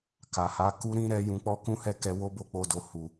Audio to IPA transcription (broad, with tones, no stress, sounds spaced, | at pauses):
k a˨ h a˨˦ k u˧ ɾ ĩ˦ ɾ ɛ˧ j ũ˧ k͡p ɔ˦ k ũ˦ h ɛ˦ k ɛ˧ w o˦ b o˦˨ k͡p o˧ d o˨ h u˨